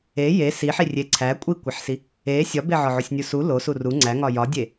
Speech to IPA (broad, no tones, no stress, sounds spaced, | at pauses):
e j e s i ħ i rʲ e ǀʰ æ kʷʼ i kʷ e ħ s i | e sʲ ɒ b e ʕ ɒ ʕ o sʲ nʲ u s u l o s u r u ŋ͡ǀ æ ŋ ɒ j ɒ dʲ e